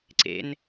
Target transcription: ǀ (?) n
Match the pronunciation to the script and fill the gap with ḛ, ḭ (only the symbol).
ḛ